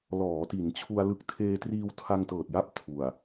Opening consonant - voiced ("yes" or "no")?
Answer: yes